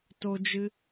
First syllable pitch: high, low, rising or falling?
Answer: high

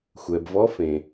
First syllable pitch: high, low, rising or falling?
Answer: low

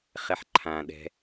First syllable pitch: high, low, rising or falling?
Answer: low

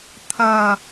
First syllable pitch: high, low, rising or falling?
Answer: high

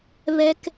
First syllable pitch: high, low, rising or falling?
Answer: high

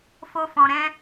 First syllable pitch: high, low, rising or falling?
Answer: high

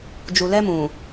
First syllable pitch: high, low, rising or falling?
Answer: low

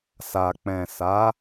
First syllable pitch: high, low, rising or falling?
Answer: low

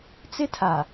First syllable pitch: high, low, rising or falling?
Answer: high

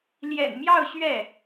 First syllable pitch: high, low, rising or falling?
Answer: low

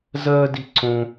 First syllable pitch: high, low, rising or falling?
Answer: high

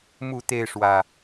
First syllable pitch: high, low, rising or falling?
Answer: falling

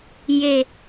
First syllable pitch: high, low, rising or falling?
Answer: low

